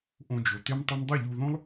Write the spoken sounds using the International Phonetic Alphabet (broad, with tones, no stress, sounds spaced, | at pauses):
ʔ õ˧ d͡ʒ o˨ t e˦ m tˤ ʌ˦ m dˤ ʌ˦˨ ʎ u˧ ð õ˦ lˠ